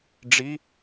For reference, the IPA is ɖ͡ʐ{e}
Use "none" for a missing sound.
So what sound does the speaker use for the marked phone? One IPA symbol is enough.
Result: i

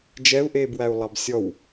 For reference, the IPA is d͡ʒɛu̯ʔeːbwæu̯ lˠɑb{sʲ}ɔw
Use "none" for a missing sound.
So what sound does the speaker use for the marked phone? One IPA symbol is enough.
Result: sʲ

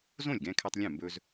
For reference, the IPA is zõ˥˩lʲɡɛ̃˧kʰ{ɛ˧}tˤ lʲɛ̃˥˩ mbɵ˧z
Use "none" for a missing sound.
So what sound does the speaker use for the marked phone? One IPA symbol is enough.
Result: ɛ˧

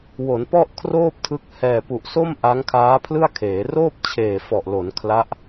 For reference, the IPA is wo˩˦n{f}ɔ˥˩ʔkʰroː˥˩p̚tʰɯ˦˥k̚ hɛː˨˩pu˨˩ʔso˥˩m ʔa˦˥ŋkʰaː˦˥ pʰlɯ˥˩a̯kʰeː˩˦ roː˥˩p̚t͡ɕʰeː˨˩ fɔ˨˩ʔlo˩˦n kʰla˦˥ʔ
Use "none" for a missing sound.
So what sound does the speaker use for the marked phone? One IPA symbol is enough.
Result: p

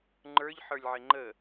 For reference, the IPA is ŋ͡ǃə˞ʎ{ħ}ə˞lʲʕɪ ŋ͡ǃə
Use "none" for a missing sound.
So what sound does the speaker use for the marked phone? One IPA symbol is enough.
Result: ħ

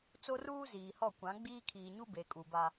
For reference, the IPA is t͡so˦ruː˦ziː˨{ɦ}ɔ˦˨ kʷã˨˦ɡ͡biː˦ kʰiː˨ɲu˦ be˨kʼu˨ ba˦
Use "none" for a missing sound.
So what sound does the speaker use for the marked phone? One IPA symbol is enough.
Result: h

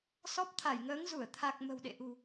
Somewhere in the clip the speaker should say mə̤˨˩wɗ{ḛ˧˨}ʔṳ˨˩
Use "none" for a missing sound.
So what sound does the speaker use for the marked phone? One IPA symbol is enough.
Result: ḛ˧˨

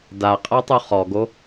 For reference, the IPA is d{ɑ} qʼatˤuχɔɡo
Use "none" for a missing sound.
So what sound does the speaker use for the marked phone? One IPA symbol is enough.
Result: a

